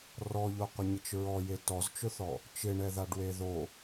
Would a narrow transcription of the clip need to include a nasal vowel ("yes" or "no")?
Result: no